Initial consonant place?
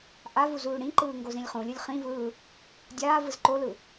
glottal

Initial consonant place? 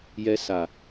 palatal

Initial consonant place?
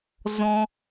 alveolar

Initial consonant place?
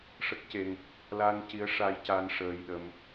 retroflex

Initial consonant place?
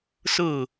alveolar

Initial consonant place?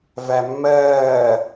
labial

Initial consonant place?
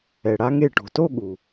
retroflex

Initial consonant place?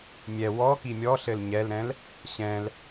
labial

